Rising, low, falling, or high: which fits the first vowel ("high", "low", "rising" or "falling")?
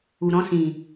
low